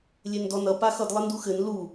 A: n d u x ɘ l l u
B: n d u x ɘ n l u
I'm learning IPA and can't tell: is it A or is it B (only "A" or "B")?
B